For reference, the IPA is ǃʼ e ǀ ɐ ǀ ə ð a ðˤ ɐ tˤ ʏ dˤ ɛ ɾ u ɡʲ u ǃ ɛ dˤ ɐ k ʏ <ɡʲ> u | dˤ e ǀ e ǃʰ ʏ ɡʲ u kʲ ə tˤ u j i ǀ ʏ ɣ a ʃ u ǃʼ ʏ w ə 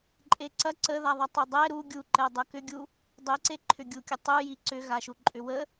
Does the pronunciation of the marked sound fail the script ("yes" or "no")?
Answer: no